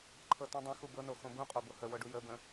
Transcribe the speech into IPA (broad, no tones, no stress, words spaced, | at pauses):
ǃʰɤtũdˤə̃ xubɤno xõbũqʼo bohəwɤɖu jəbə̃